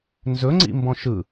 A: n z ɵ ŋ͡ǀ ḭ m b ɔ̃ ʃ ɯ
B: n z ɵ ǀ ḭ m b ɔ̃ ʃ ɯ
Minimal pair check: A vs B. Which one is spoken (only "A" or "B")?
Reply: A